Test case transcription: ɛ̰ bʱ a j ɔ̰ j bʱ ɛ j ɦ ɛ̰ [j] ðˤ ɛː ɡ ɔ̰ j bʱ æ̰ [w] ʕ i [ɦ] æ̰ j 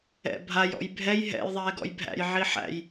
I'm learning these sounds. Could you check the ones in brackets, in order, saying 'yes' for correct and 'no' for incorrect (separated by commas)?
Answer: yes, no, no